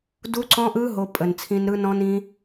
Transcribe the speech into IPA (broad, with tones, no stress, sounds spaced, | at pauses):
d u˦˥ ǀ ɔ̃˦˥ ʔ ɯ˦˥ ɦ o˦˥ pʼ ə˨ n t͡sʰ ĩ˦˥ n ɾ ɯ˦˥ n ɔ̃˦˥ n ĩ˦˥